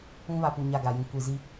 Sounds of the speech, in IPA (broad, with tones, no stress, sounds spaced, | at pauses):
ũ˦ β a˨ p u˦˨ ɲ a˦˨ ɡ a˨ j ĩ˦ kʷ i˨ z i˦